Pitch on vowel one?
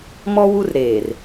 high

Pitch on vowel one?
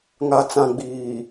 low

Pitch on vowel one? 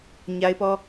high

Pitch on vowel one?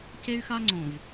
high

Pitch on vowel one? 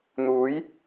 rising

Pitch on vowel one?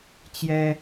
high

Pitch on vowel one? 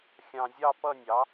low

